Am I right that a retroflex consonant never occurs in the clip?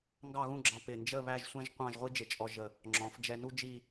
yes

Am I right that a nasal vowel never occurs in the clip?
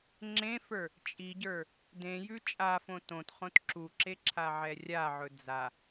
no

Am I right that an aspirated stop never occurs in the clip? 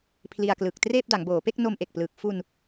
no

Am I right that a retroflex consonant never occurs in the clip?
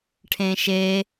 no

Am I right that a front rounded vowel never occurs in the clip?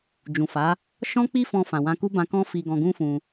yes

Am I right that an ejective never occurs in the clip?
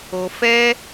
yes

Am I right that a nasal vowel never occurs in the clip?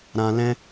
no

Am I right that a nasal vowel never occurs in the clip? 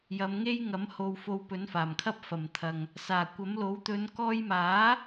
yes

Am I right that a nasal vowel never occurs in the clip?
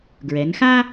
yes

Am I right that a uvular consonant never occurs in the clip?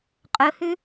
no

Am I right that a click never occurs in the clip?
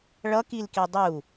yes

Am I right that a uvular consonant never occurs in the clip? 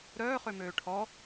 no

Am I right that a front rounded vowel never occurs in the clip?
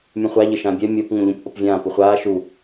no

